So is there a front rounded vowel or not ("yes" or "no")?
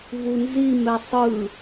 no